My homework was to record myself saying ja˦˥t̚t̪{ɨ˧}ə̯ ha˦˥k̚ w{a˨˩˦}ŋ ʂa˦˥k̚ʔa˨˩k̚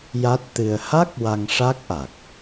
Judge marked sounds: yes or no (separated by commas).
yes, no